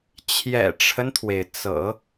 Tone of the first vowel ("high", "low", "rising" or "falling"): low